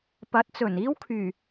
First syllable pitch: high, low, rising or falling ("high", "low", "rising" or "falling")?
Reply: rising